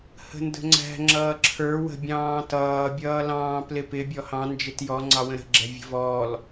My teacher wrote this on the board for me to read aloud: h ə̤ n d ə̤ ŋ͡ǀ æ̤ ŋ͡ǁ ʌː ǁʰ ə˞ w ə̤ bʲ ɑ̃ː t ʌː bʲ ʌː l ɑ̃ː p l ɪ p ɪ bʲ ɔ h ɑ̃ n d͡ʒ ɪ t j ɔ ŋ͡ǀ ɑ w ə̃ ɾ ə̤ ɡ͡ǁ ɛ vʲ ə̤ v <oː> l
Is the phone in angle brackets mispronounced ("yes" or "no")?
yes